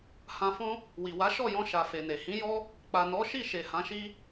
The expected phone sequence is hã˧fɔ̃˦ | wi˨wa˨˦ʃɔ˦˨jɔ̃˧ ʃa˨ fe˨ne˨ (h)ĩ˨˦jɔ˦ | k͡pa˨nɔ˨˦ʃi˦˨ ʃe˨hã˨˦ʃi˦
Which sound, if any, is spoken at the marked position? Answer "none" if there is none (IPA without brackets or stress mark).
h